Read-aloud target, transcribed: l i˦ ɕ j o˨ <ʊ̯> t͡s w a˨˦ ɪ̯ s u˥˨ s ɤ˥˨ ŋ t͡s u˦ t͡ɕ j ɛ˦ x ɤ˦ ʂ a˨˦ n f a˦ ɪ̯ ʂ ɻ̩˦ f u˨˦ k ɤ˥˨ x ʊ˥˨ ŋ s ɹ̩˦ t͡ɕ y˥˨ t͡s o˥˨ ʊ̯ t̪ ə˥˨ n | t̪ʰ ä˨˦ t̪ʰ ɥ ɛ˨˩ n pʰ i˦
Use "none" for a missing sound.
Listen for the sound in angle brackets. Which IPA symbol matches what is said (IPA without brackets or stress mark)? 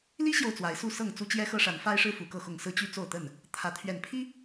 ʊ̯